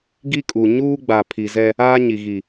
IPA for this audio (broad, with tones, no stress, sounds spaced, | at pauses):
ɡ i˦ kʼ u˨ ɲ uː˦ ɡ͡b a˨ pʰ i˨ z ɛ˦ | aː˦ ɲ i˨ ɣ i˨